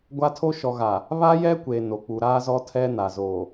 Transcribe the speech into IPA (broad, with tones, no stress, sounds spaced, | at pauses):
ɡʷ a˦ tʰ o˦ ʃ ɔ˨ ɣ a˨ | β a˦ j ɛ˦ kʷ e˨ n o˨ k͡p u˨ ɾ aː˦ z ɔ˦ tʰ ɛ˦ n a˨ z oː˨